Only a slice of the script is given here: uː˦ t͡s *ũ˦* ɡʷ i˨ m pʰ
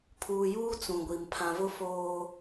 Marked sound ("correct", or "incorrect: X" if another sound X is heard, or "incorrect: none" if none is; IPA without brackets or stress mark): incorrect: ũ˨